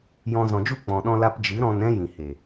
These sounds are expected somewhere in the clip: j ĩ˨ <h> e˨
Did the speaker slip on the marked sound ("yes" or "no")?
no